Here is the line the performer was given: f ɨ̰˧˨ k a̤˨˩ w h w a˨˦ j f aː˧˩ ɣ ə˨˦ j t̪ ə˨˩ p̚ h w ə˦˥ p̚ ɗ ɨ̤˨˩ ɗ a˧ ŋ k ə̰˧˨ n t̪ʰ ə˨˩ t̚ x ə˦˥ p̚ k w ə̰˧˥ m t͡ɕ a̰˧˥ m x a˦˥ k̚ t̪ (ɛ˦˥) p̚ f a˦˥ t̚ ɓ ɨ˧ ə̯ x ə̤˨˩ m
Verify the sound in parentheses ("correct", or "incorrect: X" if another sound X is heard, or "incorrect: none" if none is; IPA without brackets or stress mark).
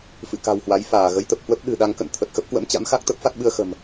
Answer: incorrect: ə˦˥